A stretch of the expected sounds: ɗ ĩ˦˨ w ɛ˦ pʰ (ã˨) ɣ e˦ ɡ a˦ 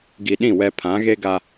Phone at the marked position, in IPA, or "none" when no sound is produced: ã˨˦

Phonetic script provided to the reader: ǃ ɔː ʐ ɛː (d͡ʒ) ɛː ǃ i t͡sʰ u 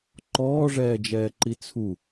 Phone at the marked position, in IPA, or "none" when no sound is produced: d͡ʒ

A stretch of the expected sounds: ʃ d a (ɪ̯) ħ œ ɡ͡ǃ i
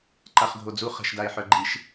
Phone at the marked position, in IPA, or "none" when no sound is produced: ɪ̯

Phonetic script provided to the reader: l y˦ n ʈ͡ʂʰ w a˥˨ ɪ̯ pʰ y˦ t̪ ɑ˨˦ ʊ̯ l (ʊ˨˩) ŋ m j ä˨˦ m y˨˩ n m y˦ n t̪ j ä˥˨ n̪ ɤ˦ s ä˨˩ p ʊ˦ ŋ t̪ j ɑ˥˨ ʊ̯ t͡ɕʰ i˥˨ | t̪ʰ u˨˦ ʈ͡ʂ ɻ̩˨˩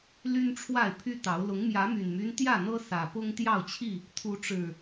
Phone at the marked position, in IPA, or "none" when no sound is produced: ʊ˨˦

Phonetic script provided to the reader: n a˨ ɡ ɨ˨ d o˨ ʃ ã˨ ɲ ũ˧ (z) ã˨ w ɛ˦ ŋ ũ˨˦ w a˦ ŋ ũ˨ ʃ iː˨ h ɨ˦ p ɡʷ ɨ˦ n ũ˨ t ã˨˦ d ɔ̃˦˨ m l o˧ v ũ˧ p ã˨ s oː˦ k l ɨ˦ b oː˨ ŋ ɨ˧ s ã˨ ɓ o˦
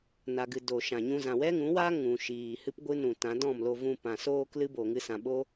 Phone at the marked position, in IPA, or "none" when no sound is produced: z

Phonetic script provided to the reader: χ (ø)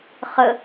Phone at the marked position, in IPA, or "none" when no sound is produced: ə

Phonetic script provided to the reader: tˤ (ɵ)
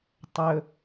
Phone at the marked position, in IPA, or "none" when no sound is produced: ɵ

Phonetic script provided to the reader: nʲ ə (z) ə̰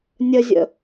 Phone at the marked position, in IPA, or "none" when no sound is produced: zʲ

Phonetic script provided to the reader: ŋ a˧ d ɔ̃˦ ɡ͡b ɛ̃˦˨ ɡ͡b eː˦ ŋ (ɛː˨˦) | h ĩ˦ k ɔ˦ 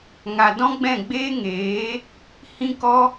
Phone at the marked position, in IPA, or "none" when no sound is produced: eː˨˦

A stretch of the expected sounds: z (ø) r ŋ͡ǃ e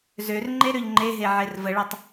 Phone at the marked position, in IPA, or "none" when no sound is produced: ø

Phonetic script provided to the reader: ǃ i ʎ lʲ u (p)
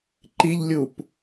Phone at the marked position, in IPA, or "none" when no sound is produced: p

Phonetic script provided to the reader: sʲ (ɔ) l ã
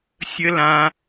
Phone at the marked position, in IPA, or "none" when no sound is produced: ə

